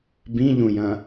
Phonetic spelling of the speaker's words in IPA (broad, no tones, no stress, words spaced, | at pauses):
bĩʎũjɐ̃